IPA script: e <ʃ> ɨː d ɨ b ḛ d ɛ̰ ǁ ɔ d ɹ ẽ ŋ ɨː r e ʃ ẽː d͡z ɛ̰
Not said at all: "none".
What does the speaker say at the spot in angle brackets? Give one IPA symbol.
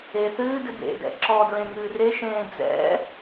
θ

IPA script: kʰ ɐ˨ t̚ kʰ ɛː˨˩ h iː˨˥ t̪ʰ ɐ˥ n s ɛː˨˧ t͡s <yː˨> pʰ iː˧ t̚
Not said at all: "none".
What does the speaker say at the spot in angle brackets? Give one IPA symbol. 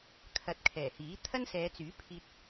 yː˨˥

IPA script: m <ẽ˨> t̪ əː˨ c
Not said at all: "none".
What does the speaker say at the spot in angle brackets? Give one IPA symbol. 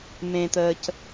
ẽ˨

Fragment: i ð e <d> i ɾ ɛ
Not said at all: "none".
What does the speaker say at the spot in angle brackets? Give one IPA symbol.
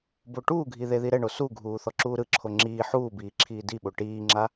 ð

